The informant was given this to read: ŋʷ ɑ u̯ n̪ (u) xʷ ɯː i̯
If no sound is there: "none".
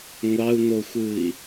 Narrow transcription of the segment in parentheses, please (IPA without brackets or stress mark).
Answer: o